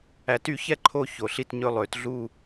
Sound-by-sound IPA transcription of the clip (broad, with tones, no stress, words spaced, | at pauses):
æ˨˩˦ty˨˩˦çɛ˥˨ ǃʰo˥˨ço˨˩˦ɬi˥˨tɲɵ˥˨ lˠø˨˩˦tɮu˥˨